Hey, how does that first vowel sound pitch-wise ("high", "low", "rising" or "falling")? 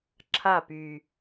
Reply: falling